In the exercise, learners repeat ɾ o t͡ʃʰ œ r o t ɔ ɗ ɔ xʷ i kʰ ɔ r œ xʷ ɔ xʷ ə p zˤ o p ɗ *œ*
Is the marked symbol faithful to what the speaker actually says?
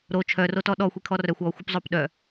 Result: yes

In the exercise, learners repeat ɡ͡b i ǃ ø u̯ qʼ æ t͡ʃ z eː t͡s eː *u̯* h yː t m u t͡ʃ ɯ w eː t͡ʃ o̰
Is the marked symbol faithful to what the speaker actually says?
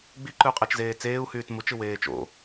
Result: yes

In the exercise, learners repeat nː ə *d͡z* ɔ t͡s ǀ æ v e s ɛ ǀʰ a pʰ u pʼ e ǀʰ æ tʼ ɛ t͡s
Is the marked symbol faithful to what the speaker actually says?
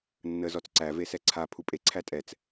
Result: no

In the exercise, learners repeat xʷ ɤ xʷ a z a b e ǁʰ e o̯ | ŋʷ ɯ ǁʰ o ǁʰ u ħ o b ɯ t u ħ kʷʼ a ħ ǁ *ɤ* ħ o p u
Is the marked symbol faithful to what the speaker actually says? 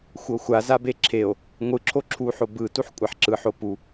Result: no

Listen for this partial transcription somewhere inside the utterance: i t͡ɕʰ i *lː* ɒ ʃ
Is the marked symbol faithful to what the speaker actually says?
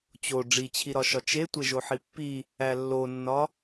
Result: no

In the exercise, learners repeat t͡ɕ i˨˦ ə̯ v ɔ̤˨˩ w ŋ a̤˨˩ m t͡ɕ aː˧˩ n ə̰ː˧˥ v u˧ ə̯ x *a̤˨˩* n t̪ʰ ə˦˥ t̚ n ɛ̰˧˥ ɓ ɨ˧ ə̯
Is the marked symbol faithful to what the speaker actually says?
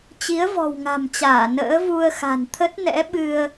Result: yes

